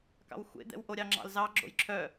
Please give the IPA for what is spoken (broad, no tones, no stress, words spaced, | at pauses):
kɑ̰wxʷḛd̪ɛ̰w ʔoɾʲɑŋ͡ǁɑ̰lzɑ ɡ͡ǁo̰jǁʰœ